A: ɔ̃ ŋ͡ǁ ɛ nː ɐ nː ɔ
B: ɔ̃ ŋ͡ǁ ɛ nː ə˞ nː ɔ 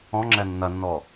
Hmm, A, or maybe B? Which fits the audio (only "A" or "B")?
A